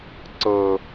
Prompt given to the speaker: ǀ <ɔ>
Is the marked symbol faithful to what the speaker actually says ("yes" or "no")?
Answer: no